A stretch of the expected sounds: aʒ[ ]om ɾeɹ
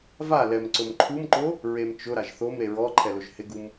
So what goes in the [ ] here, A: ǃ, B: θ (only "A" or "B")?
B